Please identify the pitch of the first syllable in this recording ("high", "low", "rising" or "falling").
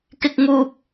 high